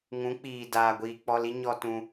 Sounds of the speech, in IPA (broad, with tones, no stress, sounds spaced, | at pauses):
ŋ ũ˨˦ k͡p iː˨ d aː˨ ɡʷ iː˨ k͡p ɔ˧ l i˦ ɲ ɔ˧ t ũ˧